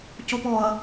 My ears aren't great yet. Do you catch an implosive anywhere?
no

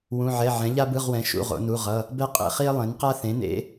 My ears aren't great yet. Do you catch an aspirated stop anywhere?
no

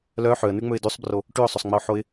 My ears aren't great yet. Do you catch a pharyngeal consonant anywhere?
yes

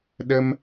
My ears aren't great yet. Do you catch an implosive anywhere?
yes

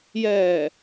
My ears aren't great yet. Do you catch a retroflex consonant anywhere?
no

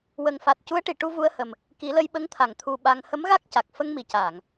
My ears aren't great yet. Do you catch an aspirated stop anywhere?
yes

